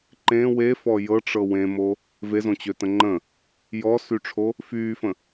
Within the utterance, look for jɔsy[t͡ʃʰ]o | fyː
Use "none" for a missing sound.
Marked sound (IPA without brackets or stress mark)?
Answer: ʈ͡ʂʰ